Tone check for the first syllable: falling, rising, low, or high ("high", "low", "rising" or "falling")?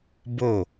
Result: falling